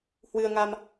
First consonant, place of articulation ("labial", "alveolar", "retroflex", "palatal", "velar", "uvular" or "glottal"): glottal